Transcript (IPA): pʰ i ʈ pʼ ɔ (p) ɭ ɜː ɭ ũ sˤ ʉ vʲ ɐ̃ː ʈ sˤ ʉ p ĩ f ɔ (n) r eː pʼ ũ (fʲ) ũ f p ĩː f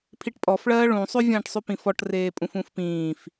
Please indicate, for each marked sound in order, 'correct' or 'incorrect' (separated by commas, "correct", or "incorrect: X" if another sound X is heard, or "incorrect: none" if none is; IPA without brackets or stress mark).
incorrect: f, incorrect: ʈ, incorrect: f